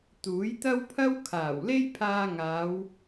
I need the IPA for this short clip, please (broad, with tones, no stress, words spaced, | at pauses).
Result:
t̪uː˨˥jt̪ɐ˥wpʰɐ˥w kʰaː˨˩wle˥jpʰaː˧ ŋaː˨˧w